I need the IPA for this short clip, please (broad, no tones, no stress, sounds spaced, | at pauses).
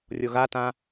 rʲ o ɣ a t ã